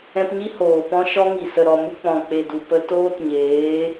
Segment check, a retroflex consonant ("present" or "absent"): absent